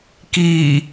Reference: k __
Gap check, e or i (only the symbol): i